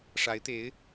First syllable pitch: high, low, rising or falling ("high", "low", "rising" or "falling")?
rising